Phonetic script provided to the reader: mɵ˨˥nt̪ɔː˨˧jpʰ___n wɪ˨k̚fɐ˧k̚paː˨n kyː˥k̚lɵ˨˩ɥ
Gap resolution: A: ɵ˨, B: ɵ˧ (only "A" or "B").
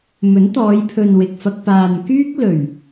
A